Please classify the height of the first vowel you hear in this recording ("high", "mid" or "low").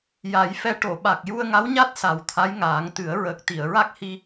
low